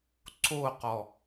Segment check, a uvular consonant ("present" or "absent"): present